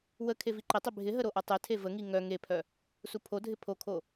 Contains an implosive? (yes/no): no